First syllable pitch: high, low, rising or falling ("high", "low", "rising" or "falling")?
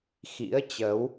rising